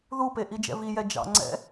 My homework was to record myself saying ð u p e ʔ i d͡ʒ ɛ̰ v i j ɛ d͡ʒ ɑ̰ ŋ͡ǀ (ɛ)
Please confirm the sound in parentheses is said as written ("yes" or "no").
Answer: no